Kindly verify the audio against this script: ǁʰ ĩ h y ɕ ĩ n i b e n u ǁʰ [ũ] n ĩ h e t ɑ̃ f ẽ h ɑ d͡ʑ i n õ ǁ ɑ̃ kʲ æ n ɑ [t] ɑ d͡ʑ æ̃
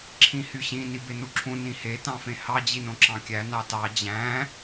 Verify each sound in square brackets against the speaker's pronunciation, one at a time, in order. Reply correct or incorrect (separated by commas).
correct, correct